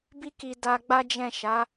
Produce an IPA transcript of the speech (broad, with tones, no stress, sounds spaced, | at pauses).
b i˦ k i˧ d a˧ ɡ͡b a˦ d͡ʒ ɛ̃˦˨ ʃ a˨˦